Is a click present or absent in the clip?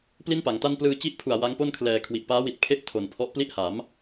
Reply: absent